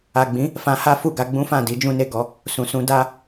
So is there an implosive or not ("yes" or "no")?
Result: no